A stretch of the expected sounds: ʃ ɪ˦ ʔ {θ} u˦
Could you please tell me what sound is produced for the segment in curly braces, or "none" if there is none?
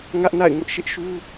ʃ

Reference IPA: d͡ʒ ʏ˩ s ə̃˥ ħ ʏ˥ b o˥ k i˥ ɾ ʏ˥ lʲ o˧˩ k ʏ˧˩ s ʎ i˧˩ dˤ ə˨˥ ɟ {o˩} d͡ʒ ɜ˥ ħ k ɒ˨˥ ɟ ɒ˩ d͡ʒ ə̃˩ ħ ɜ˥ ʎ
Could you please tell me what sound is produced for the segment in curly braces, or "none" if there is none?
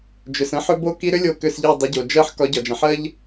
o˩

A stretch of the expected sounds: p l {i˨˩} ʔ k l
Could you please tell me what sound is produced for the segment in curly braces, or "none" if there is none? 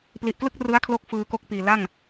i˨˩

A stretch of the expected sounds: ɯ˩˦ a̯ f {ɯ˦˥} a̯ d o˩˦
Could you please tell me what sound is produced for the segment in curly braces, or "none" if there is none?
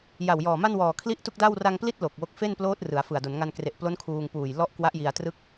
ɯ˨˩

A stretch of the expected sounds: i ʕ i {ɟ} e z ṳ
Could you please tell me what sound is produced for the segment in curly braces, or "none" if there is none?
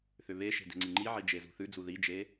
d͡ʒ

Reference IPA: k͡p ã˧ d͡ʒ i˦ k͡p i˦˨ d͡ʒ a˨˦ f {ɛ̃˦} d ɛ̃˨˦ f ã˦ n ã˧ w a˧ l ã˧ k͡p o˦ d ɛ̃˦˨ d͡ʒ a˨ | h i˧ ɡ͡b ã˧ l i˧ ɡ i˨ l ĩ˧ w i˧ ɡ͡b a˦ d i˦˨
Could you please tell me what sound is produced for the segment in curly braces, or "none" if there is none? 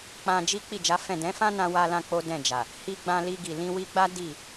ɛ̃˦˨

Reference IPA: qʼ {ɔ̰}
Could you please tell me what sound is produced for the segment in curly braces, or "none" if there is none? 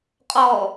ɔ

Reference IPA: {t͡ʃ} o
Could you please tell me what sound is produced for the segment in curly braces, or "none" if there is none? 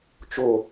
t͡ʃ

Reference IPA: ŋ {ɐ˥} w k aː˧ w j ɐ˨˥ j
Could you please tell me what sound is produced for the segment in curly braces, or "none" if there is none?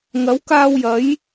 ɐ˨˥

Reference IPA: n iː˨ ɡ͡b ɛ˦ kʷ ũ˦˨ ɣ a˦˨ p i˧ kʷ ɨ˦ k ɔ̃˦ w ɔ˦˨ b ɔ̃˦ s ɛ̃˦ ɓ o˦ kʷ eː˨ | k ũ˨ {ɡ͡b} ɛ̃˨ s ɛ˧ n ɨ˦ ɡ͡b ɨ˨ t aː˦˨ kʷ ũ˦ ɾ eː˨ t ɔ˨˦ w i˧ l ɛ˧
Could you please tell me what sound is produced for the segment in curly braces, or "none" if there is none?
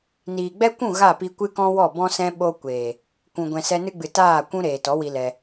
ɡʷ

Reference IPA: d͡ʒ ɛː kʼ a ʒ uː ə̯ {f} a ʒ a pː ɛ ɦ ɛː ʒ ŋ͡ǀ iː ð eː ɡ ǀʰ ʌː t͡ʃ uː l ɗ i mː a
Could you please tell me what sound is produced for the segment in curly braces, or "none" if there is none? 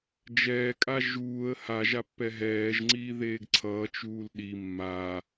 h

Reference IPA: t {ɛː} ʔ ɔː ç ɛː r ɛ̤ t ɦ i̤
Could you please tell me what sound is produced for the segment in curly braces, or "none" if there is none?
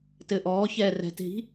ɘː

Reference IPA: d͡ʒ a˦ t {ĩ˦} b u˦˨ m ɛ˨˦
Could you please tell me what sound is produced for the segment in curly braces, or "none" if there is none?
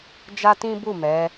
ĩ˦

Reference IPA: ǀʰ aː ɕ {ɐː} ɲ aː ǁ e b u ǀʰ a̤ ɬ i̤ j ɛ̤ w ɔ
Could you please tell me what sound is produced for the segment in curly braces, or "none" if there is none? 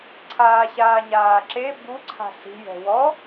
aː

